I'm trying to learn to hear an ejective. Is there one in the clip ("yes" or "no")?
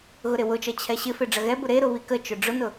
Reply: no